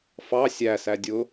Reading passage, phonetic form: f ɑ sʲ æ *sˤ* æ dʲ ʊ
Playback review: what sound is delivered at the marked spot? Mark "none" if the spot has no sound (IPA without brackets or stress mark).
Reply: s